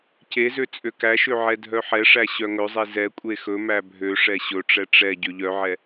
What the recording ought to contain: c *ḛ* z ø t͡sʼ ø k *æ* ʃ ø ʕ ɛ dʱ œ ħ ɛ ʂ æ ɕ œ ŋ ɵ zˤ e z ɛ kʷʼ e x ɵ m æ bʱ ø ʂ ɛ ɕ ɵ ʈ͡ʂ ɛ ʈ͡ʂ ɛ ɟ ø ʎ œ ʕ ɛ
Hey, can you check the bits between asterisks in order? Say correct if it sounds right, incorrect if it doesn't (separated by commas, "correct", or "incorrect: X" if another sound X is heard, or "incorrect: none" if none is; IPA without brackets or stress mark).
incorrect: e, correct